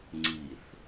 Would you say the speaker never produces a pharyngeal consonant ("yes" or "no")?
yes